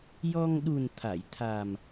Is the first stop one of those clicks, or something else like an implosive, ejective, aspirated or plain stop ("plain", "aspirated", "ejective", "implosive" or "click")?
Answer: implosive